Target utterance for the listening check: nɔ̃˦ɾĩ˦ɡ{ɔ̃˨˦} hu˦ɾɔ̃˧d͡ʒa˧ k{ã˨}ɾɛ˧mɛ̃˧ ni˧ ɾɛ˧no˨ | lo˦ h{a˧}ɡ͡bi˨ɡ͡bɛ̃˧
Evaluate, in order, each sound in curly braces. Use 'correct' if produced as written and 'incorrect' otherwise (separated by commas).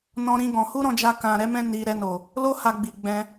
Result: incorrect, correct, correct